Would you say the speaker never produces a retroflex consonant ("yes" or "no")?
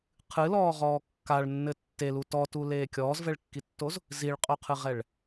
no